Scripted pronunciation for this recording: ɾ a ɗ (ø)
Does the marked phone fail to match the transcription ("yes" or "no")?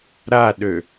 no